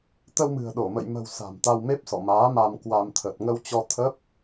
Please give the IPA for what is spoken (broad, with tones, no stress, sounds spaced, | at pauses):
t̪ ə˧ w m ɨ̤˨˩ ə̯ ɗ o˧˩ m ə̰˧˨ j m ə̤˨˩ w s a̤˨˩ m t̪ a˧ w m e˦˥ p̚ s ɔ̰˧˨ m aː˨˦ m a˧ m k w a˧ m t̪ʰ ə˨˩ t̚ ŋ ə˧ w t͡ɕ ɔ˧ t̪ʰ ə˦˥ p̚